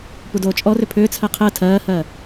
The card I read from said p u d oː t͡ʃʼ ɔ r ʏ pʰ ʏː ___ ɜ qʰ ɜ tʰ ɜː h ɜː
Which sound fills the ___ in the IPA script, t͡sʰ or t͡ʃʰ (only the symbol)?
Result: t͡sʰ